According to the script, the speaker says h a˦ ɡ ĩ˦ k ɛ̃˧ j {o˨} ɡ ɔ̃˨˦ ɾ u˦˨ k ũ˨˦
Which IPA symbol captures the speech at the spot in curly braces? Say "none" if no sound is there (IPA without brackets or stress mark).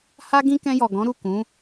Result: ɔ˨